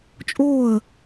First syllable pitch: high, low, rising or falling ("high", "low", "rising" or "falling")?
falling